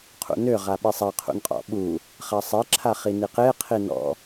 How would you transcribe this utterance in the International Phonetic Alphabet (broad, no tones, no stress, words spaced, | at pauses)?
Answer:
qʰṵnø ʁaɓisˤa qʰṵnqʼɔ̰ɓu | χasˤe ǁʰaχiniqe qʰinɔ̰